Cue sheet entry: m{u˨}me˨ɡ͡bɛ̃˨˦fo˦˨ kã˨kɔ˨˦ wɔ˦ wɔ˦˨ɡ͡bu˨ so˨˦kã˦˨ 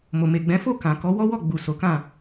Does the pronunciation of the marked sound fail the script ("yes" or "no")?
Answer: yes